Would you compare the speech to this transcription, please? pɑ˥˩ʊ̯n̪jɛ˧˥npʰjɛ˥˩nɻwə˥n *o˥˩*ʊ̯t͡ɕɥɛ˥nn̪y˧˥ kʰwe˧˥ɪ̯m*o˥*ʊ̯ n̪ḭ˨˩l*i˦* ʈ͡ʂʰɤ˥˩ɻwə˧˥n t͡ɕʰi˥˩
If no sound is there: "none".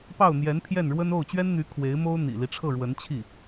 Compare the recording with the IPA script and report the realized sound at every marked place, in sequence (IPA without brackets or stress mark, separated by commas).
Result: o˥˩, o˥, i˦